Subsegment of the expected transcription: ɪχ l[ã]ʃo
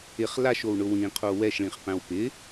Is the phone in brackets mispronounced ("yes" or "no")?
yes